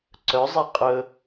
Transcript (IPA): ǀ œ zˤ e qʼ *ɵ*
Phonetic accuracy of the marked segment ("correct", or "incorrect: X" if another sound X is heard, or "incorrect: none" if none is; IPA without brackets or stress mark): correct